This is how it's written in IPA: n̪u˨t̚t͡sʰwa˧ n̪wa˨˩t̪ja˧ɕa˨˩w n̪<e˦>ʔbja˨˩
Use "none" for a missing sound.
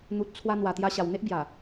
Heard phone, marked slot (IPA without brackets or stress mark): e˦